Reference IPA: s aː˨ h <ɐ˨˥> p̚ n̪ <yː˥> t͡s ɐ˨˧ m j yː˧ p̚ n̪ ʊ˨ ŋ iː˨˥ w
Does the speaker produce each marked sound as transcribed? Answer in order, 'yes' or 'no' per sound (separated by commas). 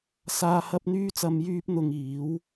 no, no